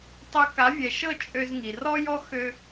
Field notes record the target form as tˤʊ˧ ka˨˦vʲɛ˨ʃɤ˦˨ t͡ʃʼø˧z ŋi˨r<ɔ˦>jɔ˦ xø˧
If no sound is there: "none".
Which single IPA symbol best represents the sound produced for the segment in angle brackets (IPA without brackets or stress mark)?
ɔ˦